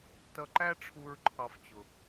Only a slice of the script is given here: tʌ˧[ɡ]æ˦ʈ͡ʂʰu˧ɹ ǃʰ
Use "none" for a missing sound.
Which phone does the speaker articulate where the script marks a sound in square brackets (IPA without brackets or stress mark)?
ǃ